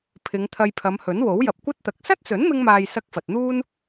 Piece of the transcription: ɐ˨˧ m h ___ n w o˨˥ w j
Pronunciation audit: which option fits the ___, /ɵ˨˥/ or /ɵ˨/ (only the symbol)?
ɵ˨˥